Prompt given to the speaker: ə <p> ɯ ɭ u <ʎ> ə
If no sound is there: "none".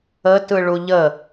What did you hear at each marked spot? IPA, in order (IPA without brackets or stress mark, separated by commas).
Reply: t, ʎ